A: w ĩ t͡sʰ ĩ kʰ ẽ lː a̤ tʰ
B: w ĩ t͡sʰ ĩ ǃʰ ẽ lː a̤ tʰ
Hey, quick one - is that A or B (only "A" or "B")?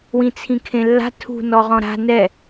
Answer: A